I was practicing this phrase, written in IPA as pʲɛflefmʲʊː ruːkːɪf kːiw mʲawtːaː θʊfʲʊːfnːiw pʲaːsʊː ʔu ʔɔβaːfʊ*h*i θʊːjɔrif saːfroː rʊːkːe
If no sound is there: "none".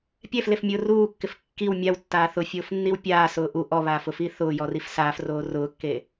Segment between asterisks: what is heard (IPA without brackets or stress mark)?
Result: f